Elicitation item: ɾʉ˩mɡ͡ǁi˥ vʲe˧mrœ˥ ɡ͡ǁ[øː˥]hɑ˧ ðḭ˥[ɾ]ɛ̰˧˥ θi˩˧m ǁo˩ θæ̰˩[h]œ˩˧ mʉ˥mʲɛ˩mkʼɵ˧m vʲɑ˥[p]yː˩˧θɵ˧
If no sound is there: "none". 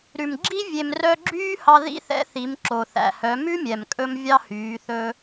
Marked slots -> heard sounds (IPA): yː˥, θ, h, h

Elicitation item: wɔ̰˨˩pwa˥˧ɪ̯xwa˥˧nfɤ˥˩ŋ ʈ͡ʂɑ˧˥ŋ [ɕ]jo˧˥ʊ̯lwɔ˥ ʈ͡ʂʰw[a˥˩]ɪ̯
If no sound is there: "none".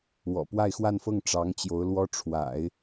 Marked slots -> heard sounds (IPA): t͡ɕ, a̰˨˩˦

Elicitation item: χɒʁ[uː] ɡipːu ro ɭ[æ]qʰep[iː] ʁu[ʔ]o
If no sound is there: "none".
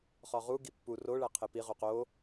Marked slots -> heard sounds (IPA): u, æ, i, q

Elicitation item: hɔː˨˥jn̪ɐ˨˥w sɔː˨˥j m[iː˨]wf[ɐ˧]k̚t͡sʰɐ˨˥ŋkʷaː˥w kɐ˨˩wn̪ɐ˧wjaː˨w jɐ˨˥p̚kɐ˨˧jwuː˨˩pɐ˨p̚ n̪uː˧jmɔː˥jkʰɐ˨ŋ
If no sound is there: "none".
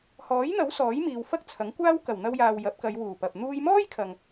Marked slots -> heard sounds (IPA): iː˨, ɐ˥

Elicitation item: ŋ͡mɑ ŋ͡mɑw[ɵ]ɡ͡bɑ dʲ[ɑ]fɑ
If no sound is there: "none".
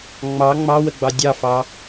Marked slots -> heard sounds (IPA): ə, ɑ

